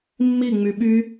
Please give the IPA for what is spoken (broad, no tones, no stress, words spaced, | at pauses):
mːiŋ͡my ɓy